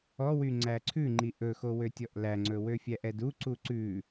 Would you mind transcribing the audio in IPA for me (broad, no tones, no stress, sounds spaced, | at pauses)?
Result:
ɔ w y ŋ͡ǀ æ ǀʰ ʉ ŋ͡ǃ i ʔ ɵ x o w ø tʲ ɔ ʔ l æ ŋ͡ǀ ɵ w ø fʲ æ ʔ ɛ d u ǀ u ǀ ʉ